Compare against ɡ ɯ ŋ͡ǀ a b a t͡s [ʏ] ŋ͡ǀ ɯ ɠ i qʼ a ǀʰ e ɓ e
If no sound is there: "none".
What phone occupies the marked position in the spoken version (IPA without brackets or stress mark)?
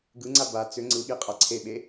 ʏ